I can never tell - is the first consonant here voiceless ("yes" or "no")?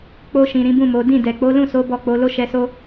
yes